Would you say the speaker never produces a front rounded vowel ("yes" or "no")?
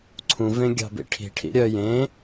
no